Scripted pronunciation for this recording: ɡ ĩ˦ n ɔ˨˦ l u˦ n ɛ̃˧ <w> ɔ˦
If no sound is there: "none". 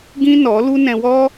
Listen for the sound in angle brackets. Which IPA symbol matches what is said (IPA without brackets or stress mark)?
w